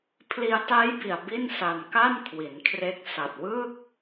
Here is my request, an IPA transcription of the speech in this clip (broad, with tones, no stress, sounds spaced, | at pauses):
pʰ l i˧ a̯ t aː˦˥ j b i˨˩ a̯ b i˥˩ n s a˧ n k a˥˩ n kʰ w i˩˦ n kʰ r e˦˥ k̚ s a˨˩ t̚ w ɯː˥˩ k̚